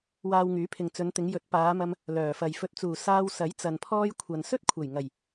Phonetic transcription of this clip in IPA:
w aː˧ w ŋ yː˨˥ pʰ ɪ˨ ŋ t͡s ɵ˨˧ n t̪ ɪ˨˧ ŋ j ɵ˨˥ t̚ p aː˨˧ m ɐ˧ m | l œː˨˩ f ɐ˨ j f ɵ˨ t̚ t͡s uː˨˩ s aː˧ w s ɐ˨˥ j t͡s ɐ˨ n pʰ ɔː˥ j kʷʰ ɐ˨ n s ɵ˥ t̚ kʷʰ ɐ˨˩ j ŋ ɐ˨˩ j

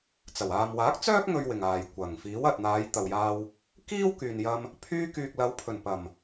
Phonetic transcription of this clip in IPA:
t͡s ɐ˨˩ w aː˨ m w aː˨˥ k̚ t͡s œː˥ k̚ ŋ ɵ˧ ɥ w ɪ˨˩ ŋ aː˨˩ j kʷ ɐ˨˩ ŋ f iː˨˥ w ɐ˨ t̚ n̪ aː˨˧ j t̪ ɐ˨ w j aː˧ w | k iː˥ w k yː˨ n j ɐ˧ m | pʰ yː˧ k yː˨ k̚ l ɐ˨˧ w pʰ ɵ˨˩ n p ɐ˨˩ m

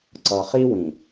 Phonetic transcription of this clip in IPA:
ǀ ʌ˨ χ i˦ w ĩ˨

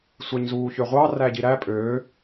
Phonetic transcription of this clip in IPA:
sʷ æ ɲ z uː ç ø ʁʷ ɑ r æ ɟ i ɾ æ pʼ øː

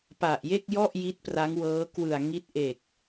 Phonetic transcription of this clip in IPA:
p a˨˩ ʔ j e˥˩ k̚ j ɔ˥˩ ʔ j i˦˥ t̚ p r a˦˥ ŋ w ɤː˦˥ k w ɯ˨˩ a̯ ŋ i˦˥ t̚ ʔ e˨˩ k̚

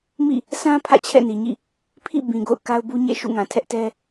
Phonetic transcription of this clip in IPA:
m ḭ˦˨ | sʰ ã˦ pʰ ä̰˦˨ t͡ɕʰ ɛ̰˦˨ n i˨ ɲ ḭ˦˨ | pʰ ḭ˦˨ b ĩ˨ ɡ o̰˦˨ ʊ̯ k a˦ ʊ̯ b u˦ ɲ ḛ˦˨ ʃ ṵ˦˨ ŋ ã˨ tʰ ɛ˦ ʔ t ɛ˦

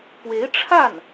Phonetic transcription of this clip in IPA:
p w e˧˥ ɪ̯ ʈ͡ʂʰ a˥˩ n

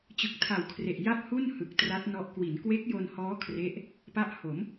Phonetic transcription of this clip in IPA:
t͡ɕ ɯ˨˩ k̚ tʰ a˨˩ w kʰ r e˨˩ ʔ j a˥˩ p̚ h u˥˩ n h ɯ˨˩ k̚ t r a˦˥ t̚ n ɔ˦˥ ʔ k w i˩˦ n k w e˦˥ k̚ j o˧ n h ɔː˦˥ kʰ r e˦˥ ʔ | p a˦˥ ʔ h o˩˦ m

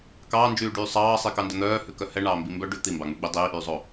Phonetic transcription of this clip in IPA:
k ɑː n d͡ʒ yː ɖ yː sˤ ɑː sˤ i k ɑ n d œ n̪ œː h ʉ k œ h ɛ ɳ ɑː m b i m b œ ɖ ʉ t̪ i m b ɑ ŋ͡m ʉ ɡ͡b i dˤ iː ʔ yː zˤ o

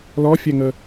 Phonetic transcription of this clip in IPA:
l ɔ fʲ ɛ ŋ ə

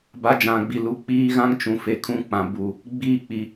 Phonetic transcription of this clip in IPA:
b a˨˦ d͡ʒ ã˨ ɡ͡b i˨ l u˨ k͡p iː˦ ɣ ã˦ ŋ t͡ʃ ũ˨ f e˨ kʰ ũ˦ k͡p ã˨ b u˨ | ɡ͡b iː˦ k͡p i˨

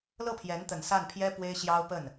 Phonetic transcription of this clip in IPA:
l ɤ˥˩ pʰ j ɛ˧˥ n t̪ ə˨˩ n s a˥˩ n pʰ j ɛ˥ p w e˥ ɪ̯ ɕ j ɑ˥ ʊ̯ p ə˥˩ n

